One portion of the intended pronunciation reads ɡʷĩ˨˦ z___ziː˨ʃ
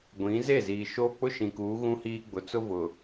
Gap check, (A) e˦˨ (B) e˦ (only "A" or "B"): A